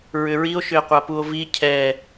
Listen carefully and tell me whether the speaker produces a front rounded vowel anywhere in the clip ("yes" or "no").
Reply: yes